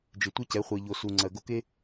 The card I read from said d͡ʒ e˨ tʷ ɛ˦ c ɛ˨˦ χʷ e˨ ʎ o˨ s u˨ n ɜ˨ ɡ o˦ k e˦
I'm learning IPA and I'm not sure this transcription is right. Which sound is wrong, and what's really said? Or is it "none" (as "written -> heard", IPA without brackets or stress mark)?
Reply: n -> ŋ͡ǀ